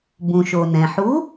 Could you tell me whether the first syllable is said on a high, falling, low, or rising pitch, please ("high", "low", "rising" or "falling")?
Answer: low